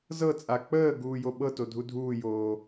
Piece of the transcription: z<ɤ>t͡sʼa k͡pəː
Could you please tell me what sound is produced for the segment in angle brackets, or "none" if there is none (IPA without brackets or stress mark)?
ɤ